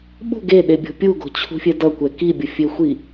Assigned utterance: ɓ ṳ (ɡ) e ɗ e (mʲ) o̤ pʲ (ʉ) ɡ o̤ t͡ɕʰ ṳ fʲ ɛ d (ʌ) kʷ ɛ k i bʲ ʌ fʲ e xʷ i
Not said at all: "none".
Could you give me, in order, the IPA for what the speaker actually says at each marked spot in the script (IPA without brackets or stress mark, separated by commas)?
ɡ, bʲ, u, ʌ